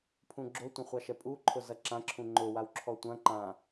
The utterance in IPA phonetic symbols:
pʰ ũ ɡ͡ǁ o tʷ ə̃ χʷ ɑ ʃ ɛ pʼ u ǃʰ ʊ z ɐ ǁ ã ǁʰ ũ ŋ͡ǃ ʊ w a w ǁʰ ɔ tʷ ɐ̃ ǃ ã

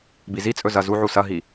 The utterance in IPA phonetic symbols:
b i z i t͡sʼ ɵ z ɐ z u ʕ u s ɐ ɦ i

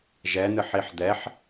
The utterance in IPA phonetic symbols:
ʒ ɛ n̪ ɨ ħ i ħ d̪ ɛ ħ

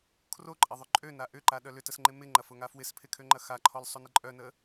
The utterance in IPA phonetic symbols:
kʰ r o ǃʼ ɐ ðˤ ʏ ǃʼ ø n a ʔ ʏ ǃ a ɗ œ l ʏ t ə s ŋ͡ǃ ɪ m ɪ ŋ͡ǃ ɐ f ʊ ŋ a f w ɪ s pʰ ɪ kʰ ø ŋ͡ǃ ɐ x a ǃʰ ɔ l sˤ o n ɪ ǃʼ œ n ə

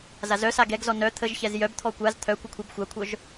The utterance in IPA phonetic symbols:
z a z œ s a ɡ ɛ ɡ z ɔ n œ t̪ʰ ə ʒ ç ɛ z j œ b t̪ʰ ɔ kʷ a z t̪ʰ œ kʷ ə kʷʰ ɛ b xʷ a kʷʰ œ ʒ

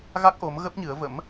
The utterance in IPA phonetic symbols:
ɣ a˦˥ k̚ ʔ o˨˦ m ɣ ə˦˥ p̚ ɲ ɨ˨˦ ə̯ v ə̰˧˥ m

